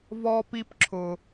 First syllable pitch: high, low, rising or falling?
high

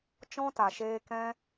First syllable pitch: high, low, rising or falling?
high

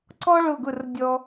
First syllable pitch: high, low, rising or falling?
high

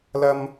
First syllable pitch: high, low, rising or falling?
high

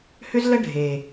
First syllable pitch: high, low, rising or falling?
high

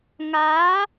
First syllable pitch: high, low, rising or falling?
rising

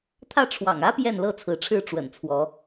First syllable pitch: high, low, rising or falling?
falling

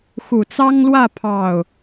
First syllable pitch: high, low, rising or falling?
low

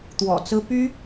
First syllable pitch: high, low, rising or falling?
low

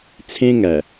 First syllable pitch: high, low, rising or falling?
high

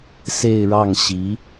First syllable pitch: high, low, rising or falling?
falling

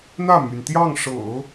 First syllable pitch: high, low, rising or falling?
falling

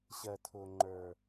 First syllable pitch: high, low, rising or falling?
low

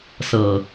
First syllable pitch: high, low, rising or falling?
low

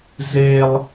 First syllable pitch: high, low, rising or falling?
high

